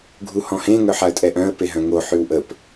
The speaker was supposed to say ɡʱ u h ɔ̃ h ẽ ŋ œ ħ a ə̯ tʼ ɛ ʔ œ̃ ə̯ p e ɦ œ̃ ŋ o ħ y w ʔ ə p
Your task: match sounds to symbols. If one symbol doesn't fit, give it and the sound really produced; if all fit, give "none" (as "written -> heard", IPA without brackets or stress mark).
none